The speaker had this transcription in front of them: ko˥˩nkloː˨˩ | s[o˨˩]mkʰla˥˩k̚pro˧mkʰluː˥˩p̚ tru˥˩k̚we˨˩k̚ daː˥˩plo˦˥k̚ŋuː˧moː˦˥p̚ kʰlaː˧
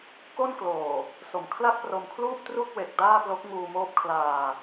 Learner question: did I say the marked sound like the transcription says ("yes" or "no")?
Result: yes